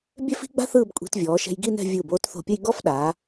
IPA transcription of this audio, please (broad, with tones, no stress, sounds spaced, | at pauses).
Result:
bʲ ɛ˥ f i̤˥ ɡ͡b a̤˥ θ ɯː˥˧ b kʷʼ i̤˧ t vʲ ɔː˩˧ ʃ ɛ̤˧ j ɡ i˥˧ n ɛ̤˥˧ vʲ ɯ˧˩ b oː˥˧ t θ o̤˧˩ pʲ ə˥˧ j ɡ ɔ˥ f ɗ aː˩˧